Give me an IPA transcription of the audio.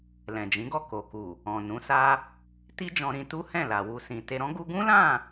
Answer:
l ɛ̃˨ d͡ʒ ĩ˨˦ ɡ ɔ˦˨ k o˨ k u˨ | ɔ̃˨ n ũ˨˦ s a˦ | t i˦ d͡ʒ ɔ̃˧ ɾ ĩ˧ t u˦ h ɛ̃˦˨ l a˨ w u˧ s ĩ˨ t e˧ ɾ ɔ̃˦ ɡ u˦ ɡ ũ˦ l ã˦˨

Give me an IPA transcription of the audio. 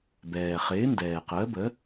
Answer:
b ɛː˩ χ ɪː˩˥ n d ɛː˩ q əː˩˥ b ə˩˥

